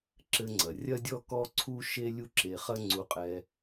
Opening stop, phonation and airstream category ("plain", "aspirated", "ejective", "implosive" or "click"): click